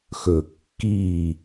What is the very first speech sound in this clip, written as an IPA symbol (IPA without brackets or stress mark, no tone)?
x